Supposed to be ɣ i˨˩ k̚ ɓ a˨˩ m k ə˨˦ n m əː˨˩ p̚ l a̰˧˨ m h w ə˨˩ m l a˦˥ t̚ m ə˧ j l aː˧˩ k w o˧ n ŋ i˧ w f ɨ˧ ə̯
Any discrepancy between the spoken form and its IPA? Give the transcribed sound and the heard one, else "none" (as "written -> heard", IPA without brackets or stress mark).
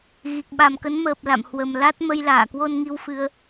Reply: none